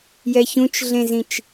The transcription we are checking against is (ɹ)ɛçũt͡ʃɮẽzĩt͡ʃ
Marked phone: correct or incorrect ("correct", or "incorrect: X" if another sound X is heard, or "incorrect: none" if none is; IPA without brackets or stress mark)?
incorrect: j